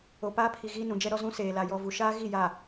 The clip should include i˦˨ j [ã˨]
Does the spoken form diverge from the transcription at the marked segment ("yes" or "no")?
yes